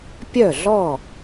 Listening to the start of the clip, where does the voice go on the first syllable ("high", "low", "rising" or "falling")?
falling